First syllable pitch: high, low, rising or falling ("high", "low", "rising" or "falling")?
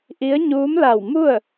rising